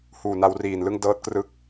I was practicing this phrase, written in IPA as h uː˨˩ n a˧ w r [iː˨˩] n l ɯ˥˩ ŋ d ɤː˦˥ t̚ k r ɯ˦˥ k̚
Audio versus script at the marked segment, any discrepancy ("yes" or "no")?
no